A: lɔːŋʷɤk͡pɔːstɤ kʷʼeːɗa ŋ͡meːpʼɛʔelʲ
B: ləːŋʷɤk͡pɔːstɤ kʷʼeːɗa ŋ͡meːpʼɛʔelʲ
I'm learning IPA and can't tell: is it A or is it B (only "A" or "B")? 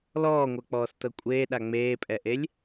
A